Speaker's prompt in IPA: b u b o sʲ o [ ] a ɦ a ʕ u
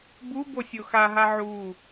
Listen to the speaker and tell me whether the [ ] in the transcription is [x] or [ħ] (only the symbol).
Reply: x